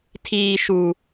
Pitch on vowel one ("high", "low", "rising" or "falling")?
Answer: low